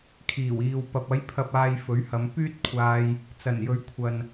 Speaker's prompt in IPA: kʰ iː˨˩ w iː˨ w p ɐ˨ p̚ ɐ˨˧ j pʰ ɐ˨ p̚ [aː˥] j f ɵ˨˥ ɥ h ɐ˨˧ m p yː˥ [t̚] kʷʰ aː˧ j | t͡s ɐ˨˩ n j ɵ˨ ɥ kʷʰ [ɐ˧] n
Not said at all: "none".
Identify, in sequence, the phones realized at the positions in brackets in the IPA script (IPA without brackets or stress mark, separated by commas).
aː˨, t̚, ɐ˨